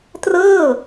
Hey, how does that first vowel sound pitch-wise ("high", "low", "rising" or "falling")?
falling